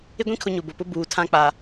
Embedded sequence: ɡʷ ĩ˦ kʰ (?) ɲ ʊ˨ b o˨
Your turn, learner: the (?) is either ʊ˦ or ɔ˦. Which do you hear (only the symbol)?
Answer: ʊ˦